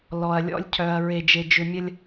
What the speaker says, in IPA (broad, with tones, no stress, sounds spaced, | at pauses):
l ɔ˨ ɐ̯ lʲ ɔ̰˦ lʲ cʰ œ˨ ɐ̯ ɹ e˨ d͡ʒ e˨ d͡ʒ ʏ˨ mʲ ɐ˦ lʲ